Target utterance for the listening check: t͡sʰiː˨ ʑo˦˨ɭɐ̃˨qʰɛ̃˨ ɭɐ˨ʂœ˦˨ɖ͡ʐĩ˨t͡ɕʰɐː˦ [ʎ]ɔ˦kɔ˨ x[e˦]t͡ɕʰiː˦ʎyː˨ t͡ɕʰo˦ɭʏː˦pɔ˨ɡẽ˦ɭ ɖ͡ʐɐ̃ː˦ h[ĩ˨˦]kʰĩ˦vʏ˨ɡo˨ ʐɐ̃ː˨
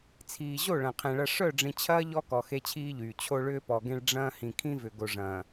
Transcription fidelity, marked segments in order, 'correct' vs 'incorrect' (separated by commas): correct, correct, incorrect